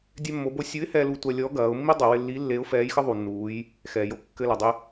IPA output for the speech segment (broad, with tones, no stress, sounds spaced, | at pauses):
dʲ ɛ˧ mː o˩˧ b o˧ sʲ u˧˥ ɪ̯ h ɛ˧ l u˧ tʷ ɐ˧ lʲ ɔ˧˥ ɡ ɐː˩˧ ʊ̯ mː i˥ dˤ ɘ˩˧ w ɪ˧ lː i˧˥ lː e˧˥ ʊ̯ f ɛː˧˥ j x ɘ˥ ðˤ u˩ nː uː˩˧ j | x ɛ˩ j o˧ kː ɘ˧ l ɐ˩ dˤ ɪ˧